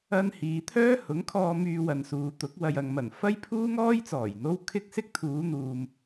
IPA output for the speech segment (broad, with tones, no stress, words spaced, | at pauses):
ɐ˧n hiː˨˧t̪ʰœː˥hʊ˨˥ŋkʰɔː˧ myː˧wɐ˨nsuː˨t̪ʊ˨˥k̚ wɐ˨jɐ˨ŋmɐ˨˩n fɐ˥jpʰuː˥ŋɔː˥j t͡sɔː˨˩jn̪o˥w kʰɪ˥k̚ sɪ˥k̚t̪ʰuː˨˧n̪uː˨m